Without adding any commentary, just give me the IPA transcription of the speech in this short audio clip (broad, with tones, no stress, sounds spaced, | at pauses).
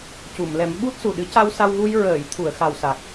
c u˨˩˨ m l ɛ˨˩˦ m ɓ u˦˥ t̚ s u˨˩ ɗ ɨ˧˥ c a˧ w s a˧ w ɣ u˧ j ɹ əː˨˩˨ j t̪ʰ u˨˩˨ ə̯ x a˨˩ w s a˨˩ k̚